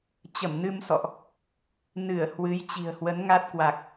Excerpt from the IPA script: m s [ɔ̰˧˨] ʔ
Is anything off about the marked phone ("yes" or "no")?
no